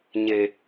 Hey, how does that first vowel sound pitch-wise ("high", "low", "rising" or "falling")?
low